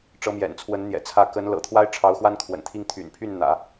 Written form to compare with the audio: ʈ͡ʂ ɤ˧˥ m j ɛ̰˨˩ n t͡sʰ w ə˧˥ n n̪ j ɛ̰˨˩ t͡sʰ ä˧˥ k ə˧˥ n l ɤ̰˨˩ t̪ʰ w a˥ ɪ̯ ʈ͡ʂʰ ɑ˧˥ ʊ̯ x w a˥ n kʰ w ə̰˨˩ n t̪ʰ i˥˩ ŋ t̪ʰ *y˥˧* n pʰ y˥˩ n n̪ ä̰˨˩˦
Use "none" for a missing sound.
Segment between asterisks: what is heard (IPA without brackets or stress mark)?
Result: y̰˨˩